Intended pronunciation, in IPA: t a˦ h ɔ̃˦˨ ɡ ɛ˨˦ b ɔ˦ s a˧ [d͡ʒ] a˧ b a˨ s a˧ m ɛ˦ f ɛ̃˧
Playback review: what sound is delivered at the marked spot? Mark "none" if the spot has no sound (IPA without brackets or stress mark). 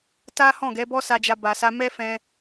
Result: d͡ʒ